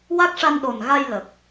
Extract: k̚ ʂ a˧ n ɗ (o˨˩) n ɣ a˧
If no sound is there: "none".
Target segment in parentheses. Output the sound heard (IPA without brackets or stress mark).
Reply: o˨˩